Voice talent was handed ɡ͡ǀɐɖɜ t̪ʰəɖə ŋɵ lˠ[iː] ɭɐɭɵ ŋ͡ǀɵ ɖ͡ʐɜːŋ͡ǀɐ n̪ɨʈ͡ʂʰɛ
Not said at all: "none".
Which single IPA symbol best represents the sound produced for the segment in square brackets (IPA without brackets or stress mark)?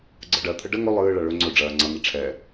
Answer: ɨː